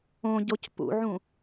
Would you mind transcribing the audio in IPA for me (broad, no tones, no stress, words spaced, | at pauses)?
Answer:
õɟoc pṵʕũ